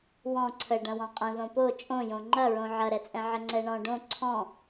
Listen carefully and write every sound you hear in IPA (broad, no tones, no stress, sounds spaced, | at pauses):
w ɔ̃ ǀʰ ə ɖ ɐ̃ w ɔ̃ qʼ ə̃ ð õ p o t͡ʃʼ õ j õ ŋ͡ǃ ɐ ɹ õ ʕ ɐ ɾ ɛ t͡sʼ ɛ̃ ʕ ə ŋ͡ǀ ɛ ɳ ɔ̃ ɖ õ ǀʰ ɔ̃